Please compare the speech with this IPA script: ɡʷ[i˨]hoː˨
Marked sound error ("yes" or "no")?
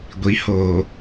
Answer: yes